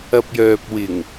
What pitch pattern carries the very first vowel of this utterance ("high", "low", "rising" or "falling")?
low